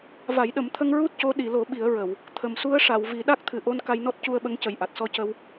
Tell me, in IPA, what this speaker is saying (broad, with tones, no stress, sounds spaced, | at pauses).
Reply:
v a˨˩˦ j ɗ ə˨˩˦ m t̪ʰ ə˧ ŋ ɹ u˦˥ t̚ c o˧˥ ɗ i˨˩˨ l o˨˩˦ ɓ i˨˩˦ ə̯ ɹ ə˨˩˨ w | t̪ʰ ə˨˩ m s u˧˥ ə̯ ʂ a˨˩˨ w v i˨˩˦ ɗ a˦˥ k̚ t̪ʰ ɨ˨˩ ʔ o˧ n k a˧ j n ɔ˦˥ t̚ c u˧ ə̯ ɓ ə˧˥ ŋ c ə˨˩ j ʔ a˨˩ t̚ s ɔ˧ c ə˧ w